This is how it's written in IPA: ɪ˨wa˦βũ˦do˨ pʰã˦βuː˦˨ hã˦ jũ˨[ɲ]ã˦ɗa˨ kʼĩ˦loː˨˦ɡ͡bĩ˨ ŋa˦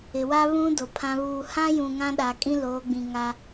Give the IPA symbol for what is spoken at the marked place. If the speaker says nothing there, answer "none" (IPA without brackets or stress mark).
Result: ŋ